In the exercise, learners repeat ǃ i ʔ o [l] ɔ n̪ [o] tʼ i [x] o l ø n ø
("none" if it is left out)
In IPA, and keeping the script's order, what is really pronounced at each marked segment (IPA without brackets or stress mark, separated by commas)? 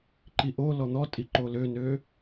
l, ɔ, ǃ